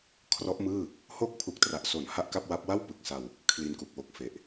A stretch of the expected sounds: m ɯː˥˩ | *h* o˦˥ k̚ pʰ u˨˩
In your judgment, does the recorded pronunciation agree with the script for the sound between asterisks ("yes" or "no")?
yes